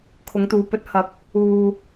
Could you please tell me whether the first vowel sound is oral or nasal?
oral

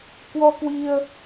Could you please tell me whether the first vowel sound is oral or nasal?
oral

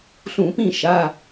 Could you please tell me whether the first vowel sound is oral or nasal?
nasal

